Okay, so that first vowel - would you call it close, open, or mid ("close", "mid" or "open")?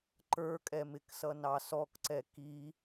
mid